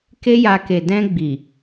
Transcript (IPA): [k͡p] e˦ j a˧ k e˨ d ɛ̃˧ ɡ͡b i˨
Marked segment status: incorrect: k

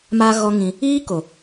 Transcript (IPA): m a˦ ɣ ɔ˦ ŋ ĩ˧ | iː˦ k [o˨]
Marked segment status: correct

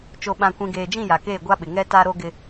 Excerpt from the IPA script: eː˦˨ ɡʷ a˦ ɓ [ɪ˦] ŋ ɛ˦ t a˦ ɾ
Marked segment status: incorrect: ɪ˨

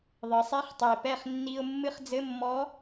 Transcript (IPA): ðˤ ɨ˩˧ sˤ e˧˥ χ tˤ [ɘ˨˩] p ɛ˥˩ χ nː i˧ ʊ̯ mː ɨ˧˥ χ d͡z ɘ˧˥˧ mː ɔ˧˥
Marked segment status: incorrect: e˨˩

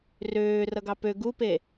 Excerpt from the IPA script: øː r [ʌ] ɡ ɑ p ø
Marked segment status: correct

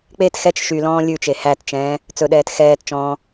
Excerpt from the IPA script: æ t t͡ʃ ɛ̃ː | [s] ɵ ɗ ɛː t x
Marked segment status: incorrect: t͡s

